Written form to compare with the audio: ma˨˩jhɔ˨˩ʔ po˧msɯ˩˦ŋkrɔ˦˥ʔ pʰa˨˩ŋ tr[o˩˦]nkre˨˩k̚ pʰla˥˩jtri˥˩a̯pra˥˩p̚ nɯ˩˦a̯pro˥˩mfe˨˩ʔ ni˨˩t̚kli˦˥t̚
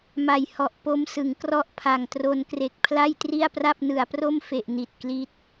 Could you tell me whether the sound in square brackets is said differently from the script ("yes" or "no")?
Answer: yes